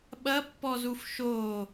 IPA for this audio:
ɓɐpːɔzuf ʃo

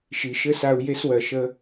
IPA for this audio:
ʃi˨ʃɘ˦sa˧u̯ je˦swɜ˨ʃə˦

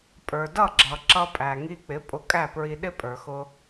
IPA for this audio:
pʼə˞˩dʌ˥˩ɡ͡ǁʌ˩ ǁʌ˧pʼæ˩ŋi˧k͡pɪ˩˥ pʼʊ˧kʼæ˥˩pɹi˧ ɗɪ˥pʼə˞˩xʊ˧

